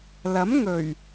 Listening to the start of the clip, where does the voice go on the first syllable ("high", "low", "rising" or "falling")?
rising